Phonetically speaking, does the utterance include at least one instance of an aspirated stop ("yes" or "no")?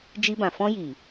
no